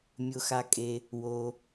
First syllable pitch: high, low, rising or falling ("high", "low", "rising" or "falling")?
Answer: low